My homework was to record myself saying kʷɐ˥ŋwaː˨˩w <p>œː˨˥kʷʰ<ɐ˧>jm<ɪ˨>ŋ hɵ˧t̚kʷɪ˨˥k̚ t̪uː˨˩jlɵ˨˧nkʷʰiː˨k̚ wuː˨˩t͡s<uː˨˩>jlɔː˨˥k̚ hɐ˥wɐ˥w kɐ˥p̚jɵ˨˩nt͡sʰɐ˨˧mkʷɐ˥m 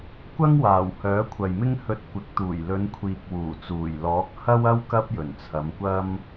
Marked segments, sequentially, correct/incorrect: incorrect: h, incorrect: ɐ˨, incorrect: ɪ˥, correct

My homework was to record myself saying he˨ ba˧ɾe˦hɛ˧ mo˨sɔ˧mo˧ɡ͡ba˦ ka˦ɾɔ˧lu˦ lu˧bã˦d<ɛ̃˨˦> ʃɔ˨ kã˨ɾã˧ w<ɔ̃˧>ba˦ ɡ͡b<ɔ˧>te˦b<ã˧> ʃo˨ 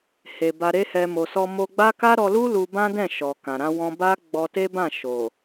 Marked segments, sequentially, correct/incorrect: incorrect: ɛ̃˦˨, correct, correct, incorrect: ã˦˨

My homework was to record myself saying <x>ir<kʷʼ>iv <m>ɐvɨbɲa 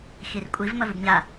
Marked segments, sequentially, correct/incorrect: correct, correct, correct

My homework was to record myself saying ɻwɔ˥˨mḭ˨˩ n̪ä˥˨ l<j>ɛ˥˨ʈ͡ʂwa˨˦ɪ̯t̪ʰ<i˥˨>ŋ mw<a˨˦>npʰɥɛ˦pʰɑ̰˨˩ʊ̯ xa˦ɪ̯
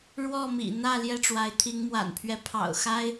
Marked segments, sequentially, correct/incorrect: correct, incorrect: i˨˦, incorrect: a̰˨˩

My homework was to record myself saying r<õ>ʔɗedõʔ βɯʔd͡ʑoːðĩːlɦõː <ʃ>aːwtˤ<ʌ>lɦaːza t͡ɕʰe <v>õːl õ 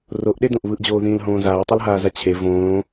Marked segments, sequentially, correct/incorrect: incorrect: o, incorrect: z, correct, correct

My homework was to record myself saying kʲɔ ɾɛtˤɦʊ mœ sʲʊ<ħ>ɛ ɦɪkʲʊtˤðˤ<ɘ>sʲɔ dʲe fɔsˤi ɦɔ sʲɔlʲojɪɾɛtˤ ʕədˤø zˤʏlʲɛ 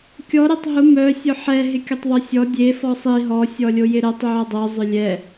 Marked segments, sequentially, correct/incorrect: correct, incorrect: ø

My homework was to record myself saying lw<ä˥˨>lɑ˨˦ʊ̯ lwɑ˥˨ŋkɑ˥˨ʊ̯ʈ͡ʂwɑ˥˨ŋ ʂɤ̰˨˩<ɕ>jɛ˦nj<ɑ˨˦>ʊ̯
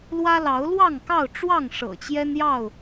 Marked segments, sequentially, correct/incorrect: incorrect: ä˦, incorrect: t͡ɕ, incorrect: ɑ˥˨

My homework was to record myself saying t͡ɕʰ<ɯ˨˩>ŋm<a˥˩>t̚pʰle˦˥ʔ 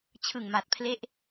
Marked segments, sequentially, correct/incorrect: correct, incorrect: a˨˩

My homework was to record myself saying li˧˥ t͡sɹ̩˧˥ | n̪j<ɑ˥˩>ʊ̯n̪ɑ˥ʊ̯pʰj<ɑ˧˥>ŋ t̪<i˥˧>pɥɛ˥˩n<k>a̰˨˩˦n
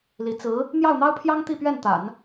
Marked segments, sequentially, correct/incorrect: correct, incorrect: ɑ˥, correct, incorrect: t̪

